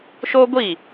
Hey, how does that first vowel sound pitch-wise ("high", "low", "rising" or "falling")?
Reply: high